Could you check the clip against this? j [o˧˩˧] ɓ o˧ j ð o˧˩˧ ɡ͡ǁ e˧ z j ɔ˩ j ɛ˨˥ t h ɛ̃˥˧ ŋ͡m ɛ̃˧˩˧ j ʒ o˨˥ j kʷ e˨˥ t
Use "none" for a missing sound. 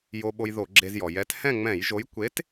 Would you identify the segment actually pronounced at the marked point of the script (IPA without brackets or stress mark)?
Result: o˧